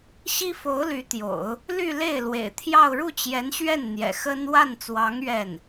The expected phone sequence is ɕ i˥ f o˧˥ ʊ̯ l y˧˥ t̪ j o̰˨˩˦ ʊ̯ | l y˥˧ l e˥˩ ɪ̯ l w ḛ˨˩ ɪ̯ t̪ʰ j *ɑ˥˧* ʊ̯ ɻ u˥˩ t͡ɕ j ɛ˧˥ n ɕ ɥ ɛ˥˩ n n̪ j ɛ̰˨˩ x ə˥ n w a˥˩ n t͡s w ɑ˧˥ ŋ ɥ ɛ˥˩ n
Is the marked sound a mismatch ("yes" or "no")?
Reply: no